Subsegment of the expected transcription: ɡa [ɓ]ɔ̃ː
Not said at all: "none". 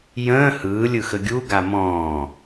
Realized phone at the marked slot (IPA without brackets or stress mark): m